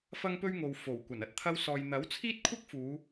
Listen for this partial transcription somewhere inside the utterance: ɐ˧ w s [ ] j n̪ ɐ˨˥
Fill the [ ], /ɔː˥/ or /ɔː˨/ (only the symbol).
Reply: ɔː˨